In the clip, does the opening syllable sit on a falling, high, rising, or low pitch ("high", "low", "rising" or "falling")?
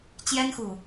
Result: high